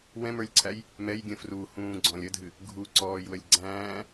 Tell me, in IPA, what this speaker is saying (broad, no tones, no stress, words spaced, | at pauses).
wɛ̃mə˞lʲǀʰæj | mɛjɡʲə̃ fruhũːɡ͡ǀɔ̃lʲ ədʱɨ | ɡʱuǀɔːjwəlʲ ɡ͡ǀæ̃ː